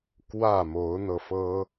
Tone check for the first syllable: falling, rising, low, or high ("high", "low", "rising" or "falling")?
falling